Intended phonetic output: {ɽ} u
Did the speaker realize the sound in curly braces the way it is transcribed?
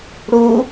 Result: yes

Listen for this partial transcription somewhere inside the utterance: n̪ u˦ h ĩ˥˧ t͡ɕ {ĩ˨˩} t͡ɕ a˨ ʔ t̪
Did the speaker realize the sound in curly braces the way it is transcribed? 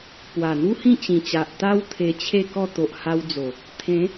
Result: yes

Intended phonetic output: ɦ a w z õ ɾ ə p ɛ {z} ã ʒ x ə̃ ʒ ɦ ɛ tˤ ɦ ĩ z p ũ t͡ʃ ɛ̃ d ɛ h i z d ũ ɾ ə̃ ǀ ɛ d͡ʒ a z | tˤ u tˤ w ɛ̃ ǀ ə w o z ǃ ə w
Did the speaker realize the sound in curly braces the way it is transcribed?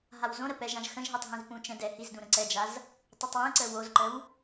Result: no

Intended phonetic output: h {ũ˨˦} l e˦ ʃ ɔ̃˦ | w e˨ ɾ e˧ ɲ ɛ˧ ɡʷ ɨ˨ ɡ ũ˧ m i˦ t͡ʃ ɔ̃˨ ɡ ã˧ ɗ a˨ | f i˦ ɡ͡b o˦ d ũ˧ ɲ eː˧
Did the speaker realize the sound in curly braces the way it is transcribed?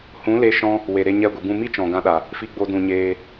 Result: yes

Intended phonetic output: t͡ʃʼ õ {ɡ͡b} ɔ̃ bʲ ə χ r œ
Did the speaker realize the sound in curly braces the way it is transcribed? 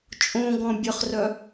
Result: no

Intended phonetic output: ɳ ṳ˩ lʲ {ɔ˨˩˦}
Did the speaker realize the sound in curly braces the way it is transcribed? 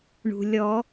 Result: yes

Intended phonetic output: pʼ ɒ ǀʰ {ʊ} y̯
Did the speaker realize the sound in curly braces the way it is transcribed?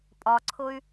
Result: yes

